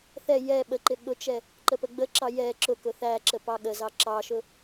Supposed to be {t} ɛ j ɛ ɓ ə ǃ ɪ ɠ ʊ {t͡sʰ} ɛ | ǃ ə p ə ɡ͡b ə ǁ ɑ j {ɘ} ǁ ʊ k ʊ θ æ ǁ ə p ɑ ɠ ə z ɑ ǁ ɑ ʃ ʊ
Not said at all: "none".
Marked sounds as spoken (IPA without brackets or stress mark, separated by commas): θ, t͡ʃ, ɛ